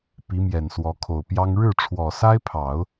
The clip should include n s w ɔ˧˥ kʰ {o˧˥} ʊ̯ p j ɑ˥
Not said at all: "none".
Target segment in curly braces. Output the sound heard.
o˨˩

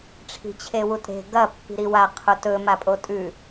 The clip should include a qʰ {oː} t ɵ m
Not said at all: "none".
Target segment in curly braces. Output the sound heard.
o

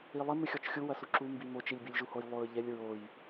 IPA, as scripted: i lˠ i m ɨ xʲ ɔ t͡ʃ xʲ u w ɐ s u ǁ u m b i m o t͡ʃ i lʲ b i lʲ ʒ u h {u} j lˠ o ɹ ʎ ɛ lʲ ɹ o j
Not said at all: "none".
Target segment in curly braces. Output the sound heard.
o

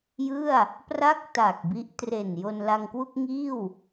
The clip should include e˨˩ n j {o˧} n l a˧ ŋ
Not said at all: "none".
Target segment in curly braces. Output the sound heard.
o˧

